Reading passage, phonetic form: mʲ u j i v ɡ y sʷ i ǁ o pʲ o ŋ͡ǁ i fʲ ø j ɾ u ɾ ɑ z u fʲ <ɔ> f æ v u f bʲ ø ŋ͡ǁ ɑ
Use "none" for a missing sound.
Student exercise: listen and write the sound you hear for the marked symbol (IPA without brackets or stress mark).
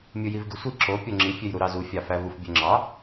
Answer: ɑ